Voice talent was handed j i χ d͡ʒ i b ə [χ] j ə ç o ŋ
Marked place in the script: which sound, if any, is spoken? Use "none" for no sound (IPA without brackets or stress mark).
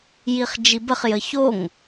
χ